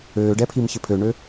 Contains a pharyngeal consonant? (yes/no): no